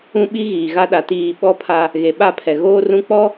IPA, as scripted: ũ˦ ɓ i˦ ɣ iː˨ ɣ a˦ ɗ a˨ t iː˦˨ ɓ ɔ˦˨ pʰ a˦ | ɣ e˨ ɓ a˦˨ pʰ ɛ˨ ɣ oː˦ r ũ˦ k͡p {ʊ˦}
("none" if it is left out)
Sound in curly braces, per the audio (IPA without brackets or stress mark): ɔ˦